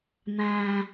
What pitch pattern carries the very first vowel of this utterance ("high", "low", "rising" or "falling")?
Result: low